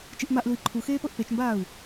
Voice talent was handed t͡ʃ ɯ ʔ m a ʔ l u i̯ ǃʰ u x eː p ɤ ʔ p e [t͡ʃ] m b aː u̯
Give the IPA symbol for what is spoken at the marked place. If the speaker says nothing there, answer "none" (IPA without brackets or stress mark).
t͡ʃ